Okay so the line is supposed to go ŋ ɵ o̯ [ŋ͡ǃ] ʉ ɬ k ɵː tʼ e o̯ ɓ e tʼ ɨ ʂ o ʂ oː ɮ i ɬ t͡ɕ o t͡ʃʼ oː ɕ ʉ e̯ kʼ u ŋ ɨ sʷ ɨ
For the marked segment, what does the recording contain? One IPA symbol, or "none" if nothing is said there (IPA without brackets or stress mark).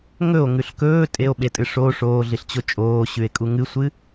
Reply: ŋ